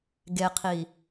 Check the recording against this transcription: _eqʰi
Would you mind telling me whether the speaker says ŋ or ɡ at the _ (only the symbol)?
ɡ